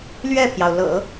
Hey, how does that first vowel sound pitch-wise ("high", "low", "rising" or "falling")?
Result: falling